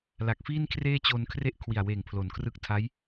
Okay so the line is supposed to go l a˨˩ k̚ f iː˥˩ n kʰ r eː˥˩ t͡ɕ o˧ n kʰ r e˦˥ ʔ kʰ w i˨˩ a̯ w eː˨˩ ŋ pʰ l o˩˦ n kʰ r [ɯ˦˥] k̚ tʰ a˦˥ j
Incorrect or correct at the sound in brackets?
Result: correct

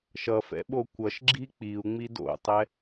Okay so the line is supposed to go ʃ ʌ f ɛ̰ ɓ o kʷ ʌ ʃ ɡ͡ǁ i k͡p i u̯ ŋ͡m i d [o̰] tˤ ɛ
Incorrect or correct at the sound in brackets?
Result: correct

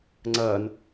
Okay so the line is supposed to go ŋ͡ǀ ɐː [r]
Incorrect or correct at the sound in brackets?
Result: incorrect: n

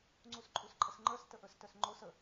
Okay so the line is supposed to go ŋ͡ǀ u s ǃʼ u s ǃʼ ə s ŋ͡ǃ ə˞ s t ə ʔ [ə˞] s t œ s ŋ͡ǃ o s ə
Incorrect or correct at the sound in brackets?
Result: correct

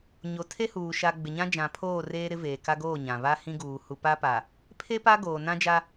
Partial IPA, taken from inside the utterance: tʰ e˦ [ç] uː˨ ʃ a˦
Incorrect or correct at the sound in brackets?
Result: incorrect: h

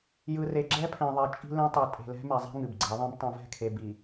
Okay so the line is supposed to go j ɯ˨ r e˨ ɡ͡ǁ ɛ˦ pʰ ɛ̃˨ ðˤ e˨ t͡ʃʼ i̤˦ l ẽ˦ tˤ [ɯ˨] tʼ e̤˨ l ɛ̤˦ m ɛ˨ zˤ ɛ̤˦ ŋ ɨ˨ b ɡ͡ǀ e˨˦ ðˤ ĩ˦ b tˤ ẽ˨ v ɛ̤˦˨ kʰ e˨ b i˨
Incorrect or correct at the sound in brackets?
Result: correct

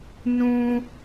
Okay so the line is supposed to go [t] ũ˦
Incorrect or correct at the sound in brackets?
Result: incorrect: n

